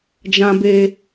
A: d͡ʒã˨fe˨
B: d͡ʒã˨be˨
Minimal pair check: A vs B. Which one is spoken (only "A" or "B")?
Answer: B